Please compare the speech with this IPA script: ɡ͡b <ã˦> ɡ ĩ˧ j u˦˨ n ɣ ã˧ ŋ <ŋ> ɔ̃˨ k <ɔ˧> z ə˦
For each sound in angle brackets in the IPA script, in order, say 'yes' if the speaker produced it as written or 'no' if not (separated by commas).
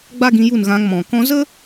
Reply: no, no, no